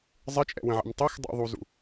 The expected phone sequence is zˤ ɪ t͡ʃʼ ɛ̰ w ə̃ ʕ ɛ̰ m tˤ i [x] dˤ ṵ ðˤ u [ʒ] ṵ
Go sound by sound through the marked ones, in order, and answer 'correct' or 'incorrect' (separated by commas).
correct, incorrect